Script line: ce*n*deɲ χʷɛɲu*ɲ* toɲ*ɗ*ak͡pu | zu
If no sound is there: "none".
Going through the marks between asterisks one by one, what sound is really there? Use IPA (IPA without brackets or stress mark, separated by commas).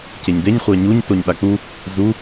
ɲ, ɲ, ɗ